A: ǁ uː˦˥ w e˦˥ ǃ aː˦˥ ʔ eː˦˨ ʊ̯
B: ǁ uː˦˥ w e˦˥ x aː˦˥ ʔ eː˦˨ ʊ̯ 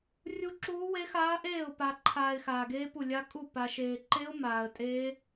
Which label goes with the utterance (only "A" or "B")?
B